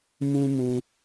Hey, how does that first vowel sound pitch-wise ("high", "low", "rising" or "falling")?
high